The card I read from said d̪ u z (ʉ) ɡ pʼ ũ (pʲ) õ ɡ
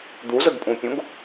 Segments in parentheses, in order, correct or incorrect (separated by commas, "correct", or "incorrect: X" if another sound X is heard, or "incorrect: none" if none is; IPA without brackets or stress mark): incorrect: ə, correct